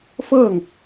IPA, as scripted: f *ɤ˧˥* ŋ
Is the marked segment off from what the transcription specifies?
yes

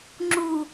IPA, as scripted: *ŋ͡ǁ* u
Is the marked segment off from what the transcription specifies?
no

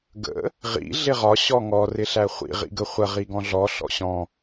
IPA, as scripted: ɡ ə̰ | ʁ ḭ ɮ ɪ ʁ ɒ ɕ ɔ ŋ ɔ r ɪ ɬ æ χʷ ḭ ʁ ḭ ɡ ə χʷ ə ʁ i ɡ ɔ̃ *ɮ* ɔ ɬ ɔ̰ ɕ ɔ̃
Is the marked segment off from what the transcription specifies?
no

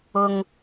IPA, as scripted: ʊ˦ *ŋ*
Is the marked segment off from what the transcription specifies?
no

